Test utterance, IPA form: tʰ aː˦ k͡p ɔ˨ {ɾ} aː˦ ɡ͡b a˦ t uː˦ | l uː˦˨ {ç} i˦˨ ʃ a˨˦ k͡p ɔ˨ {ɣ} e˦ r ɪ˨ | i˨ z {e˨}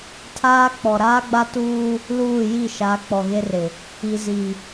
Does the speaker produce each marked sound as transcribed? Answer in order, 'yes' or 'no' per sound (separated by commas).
yes, no, yes, no